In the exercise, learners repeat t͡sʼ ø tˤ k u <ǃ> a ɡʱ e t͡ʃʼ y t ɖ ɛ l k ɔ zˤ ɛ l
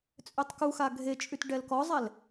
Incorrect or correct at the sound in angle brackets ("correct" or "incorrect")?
incorrect